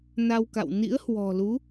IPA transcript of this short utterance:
n a˧ w k a̰˧˨ w n ḭ˧˥ ə̯ h w ɔ̤˨˩ l u˨˦

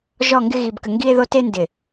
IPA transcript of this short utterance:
ʒ ɔ˦˨ ŋ ɡ ɪ˦ ɣ i˨ b k ə˨ ŋ ɡ i˦ e̯ ð o˦ t e˦ n d ɪ˨

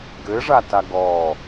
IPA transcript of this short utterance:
ɡ ɘ ʐ a t a ɡ ɔ

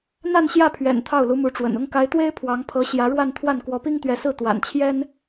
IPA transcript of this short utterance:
n̪ a˥˧ n ɕ j ä˥˩ pʰ ɥ ɛ̰˨˩ n t̪ʰ ɑ˥˩ ʊ̯ l u˧˥ m u˧˥ ʈ͡ʂ w ə̰˨˩ n ʊ˥˩ ŋ k a˧˥ ɪ̯ t̪ w e˥ ɪ̯ pʰ w ɑ˧˥ ŋ pʰ ɤ˧˥ ɕ j ä˧˥ ɻ w a˥˧ n t̪ʰ w a˥˩ n k w ɔ˧˥ p i˥ ŋ t̪ ɥ ɛ˧˥ s ɹ̩˥˩ t̪ w a̰˨˩ n t͡ɕʰ j ɛ˥ n

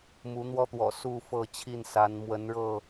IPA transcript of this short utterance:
m u˨˦ n̪ w ɔ˦ t̪ w ɔ̰˨˩ s u˥˨ f ɤ˥˨ t͡ɕʰ i˥˨ n s a˨˦ n m w ə˨˦ n ɻ ɤ˥˨

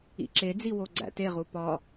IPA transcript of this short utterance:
ḭ ǁ e d͡z i w o ɡ͡ǀ æ̰ t e ʁ u p ɒ

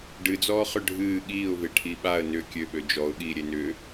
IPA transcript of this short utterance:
ɖ ɨ d͡z ɔː χ ʏ ɖʱ ɨː ɠ iː ʊ̯ v e ʈʰ i ɓ a ə̯ n ʏ kʲ ø ɓ ø d͡ʒ ɔ ʊ̯ ɠ iː ɾʲ e n ʏː

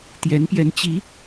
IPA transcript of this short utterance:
t̪ j ɛ˧˥ n p j ɛ˧˥ n t͡ɕ i˧˥

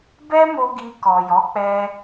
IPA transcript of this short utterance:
b ɛ˦ m o˧ ɡ i˧ k ɔ˨ j ɔ˨˦ k͡p ɛ˧

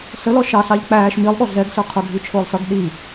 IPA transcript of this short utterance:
ɬ ə l ɔ ʃ ɑ ɬ ɑ ʎ k͡p æː ʃ m i lˠ ɠ ɔ ɮ ɛ ɡ ɬ ə˞ qʰ ʊ ɡʱ i t͡ʃʰ ʊː lˠ s ʌ ɡ ɗ i

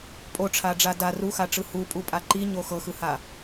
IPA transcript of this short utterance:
pʼ o ʈ͡ʂʰ a ɖ͡ʐ a d a r u x a ʈ͡ʂ ɯ h u pʼ u pʼ a ǃ i ɲ o x ɤ x ɯ h a

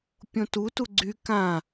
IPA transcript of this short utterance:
pʲ õ t u t u ɡ͡ǀ y k ã

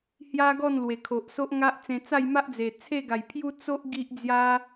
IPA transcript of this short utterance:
h j a˦ ɡ ɔ˥˧ n l w e˨˩ kʰ o˨ ʔ s o˦ ʔ ŋ a˦ ʔ t͡s ẽ˧ t͡s a˥˧ j m a˦ ʔ d͡z e˨˩ t͡sʰ e˥˧ ɡ a˨˩ j pʰ j u˦ t͡s o˦ ʔ ɡ i˦ ʔ d͡z j a˦

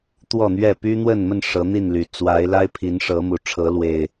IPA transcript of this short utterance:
t̪ w ɔ˥˨ n̪ ɥ ɛ˥˨ p y˦ n̪ w ə˥˨ n m ə˥˨ n ʂ ɤ˨˦ n̪ i˥˨ n l y˨˩ t͡s w a˨˦ ɪ̯ l a˦ ɪ̯ pʰ i˨˦ n ʂ ɤ˨˦ m u˨˩ ʈ͡ʂʰ ɤ˨˦ l w e˨˩ ɪ̯

